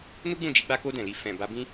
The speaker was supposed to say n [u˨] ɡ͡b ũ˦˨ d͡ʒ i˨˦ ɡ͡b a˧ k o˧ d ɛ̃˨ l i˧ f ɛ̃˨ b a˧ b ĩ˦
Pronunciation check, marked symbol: incorrect: u˦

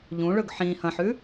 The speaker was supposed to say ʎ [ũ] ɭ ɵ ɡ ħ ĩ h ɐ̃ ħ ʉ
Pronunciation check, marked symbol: correct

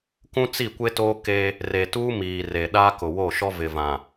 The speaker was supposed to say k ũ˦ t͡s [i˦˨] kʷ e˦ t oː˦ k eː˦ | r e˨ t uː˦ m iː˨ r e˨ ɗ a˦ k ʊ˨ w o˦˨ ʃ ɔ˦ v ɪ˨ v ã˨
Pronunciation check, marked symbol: correct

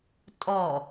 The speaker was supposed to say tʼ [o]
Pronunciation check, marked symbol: incorrect: ɔ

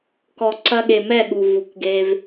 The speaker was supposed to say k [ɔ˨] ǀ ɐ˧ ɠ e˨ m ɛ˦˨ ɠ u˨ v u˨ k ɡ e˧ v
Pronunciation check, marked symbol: correct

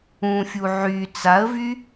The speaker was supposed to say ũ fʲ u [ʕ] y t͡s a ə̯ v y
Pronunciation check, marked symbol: correct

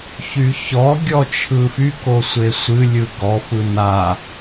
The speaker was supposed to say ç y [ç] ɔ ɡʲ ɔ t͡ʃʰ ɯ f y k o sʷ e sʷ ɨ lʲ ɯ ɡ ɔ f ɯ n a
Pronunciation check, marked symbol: correct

